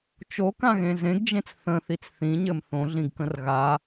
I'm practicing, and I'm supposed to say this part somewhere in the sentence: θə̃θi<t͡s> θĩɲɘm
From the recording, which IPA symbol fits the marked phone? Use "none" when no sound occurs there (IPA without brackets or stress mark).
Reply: t͡s